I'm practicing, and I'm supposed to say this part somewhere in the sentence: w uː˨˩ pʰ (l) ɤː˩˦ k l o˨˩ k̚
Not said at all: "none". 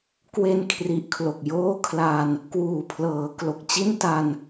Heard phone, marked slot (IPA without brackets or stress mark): l